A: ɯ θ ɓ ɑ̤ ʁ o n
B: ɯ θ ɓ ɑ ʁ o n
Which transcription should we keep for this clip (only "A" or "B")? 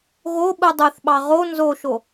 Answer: B